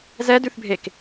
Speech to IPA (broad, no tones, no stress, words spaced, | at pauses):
zɛdʉθbʱek